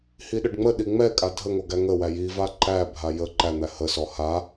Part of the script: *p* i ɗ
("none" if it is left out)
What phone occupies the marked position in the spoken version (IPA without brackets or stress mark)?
h